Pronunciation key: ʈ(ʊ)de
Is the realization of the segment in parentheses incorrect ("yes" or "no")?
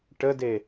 yes